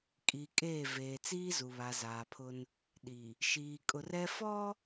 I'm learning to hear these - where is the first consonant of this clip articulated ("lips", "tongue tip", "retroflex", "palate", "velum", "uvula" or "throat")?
velum